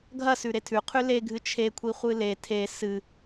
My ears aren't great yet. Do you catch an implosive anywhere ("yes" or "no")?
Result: no